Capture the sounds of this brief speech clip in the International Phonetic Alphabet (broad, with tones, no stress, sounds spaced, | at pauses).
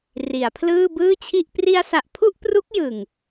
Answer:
r i˩˦ a̯ pʰ l ɯː˥˩ b ɯː˥˩ t͡ɕʰ i˥˩ ʔ p r i˧ a̯ s a˨˩ ʔ pʰ u˥˩ ʔ p r u˦˥ k̚ j ɯ˨˩ ŋ